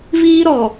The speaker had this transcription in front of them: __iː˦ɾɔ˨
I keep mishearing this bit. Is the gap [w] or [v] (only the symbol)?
v